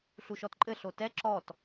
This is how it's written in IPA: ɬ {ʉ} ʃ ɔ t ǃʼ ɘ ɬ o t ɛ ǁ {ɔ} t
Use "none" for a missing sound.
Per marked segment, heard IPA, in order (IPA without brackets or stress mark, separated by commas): u, ɔ